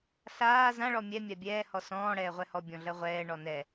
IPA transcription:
ɬ aː z ã ɭ ɔ mʲ ɛ mʲ a bʲ ɛː h ɔ s ɔ̃ː ɽ ɛː ʁʷ ɛ h ɔ bʲ ɔ̃ ɮ ɜ ʁʷ ɛː ɳ ɔ n ɛ

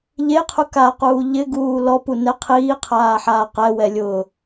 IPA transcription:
ʎ e qʰ u k a q uː ʎ ɪ ɡ uː l ɔ p u n ɛ qʰ iː qʰ aː ħ aː q ɛ w ɛ lʲ ʊː

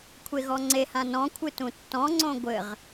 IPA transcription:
kʷʰ e ɣ ɔ ŋ͡ǀ e h ã n ɔ̃ kʷʰ ɨ t ũ tː ɔ̃ ŋ͡ǀ õ ɡʷ ɘ ʁ

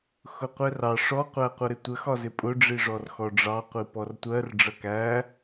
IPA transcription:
x ʊ qʷ ɛ r ɑ ʂ ɔ qʷ æ qʷ ʌ ɾ ɪ tʷ ə x ɒ z ɪ pʼ ʊ ɖ͡ʐ i ʐ ɔ r x ɔ ɖ͡ʐ ɑ qʷ i p ɔ r tʷ ɜ r ɖ͡ʐ ʌ k æ

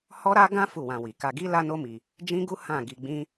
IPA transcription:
h ɔ˦ ɾ a˦ ɡ ã˦ f u˦˨ w ã˧ w i˨ k a˧ ɡ i˦ l a˦ n o˦ m i˧ | d͡ʒ ĩ˦ ɡ u˦ h ã˦˨ ɡ i˧ ɡ͡b ĩ˦

